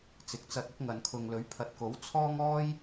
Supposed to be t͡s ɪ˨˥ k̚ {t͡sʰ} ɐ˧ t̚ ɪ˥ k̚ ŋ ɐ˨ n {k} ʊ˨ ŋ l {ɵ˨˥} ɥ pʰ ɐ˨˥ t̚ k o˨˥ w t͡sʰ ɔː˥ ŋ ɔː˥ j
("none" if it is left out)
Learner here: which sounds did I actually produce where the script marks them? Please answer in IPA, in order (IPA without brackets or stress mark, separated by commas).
t͡s, kʰ, ɵ˨˥